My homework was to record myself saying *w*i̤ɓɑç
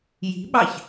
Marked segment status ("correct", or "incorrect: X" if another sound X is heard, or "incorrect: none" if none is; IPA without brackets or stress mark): incorrect: j